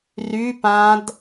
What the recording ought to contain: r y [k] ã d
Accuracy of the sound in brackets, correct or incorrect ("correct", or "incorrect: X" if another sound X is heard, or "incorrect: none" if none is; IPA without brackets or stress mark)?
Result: incorrect: p